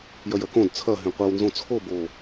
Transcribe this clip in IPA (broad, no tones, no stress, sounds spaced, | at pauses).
j ɐ j ɐ k õ d t͡sʰ ɐ ɦ ẽ qʷ e w n z õ t͡sʰ o b o